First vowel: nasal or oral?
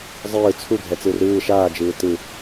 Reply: oral